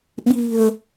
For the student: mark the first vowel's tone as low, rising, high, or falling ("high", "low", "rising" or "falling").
low